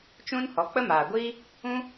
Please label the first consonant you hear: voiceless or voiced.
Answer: voiceless